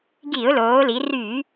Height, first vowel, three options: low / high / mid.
high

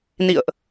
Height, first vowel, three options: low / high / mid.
high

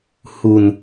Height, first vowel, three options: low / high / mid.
high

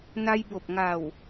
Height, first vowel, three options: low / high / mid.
low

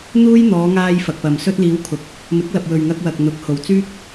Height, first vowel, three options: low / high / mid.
high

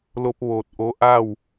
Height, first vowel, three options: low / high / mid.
mid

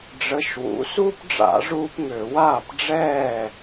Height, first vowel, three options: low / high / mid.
mid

